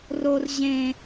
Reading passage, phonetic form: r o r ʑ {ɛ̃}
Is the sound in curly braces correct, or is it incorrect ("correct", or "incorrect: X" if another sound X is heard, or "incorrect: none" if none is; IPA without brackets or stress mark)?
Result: incorrect: ẽ